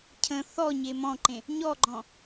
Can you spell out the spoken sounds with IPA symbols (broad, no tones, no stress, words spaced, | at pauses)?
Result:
cʰə̃ θɔ ɲemɔ̃ǃẽ | ɲɔɡ͡ǃɔ̃